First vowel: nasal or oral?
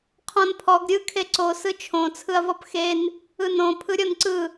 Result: nasal